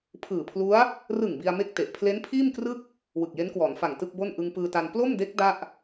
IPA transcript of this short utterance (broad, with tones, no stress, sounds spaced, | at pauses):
pʰ ɯː˨˩ pʰ l u˦˥ a̯ | r ɯ˨˩ ŋ b i˧ a̯ m e˥˩ k̚ t e˨˩ ʔ pʰ l e˦˥ n pʰ iː˥˩ m k r ɯ˥˩ k̚ | w ɯ˨˩ k̚ j e˦˥ n k w ɔː˩˦ n f a˨˩ ŋ t ɯ˥˩ k̚ b o˥˩ n ʔ ɯ˧ ŋ p ɯː˧ t a˧ n p l o˥˩ m d e˦˥ k̚ d a˥˩ ʔ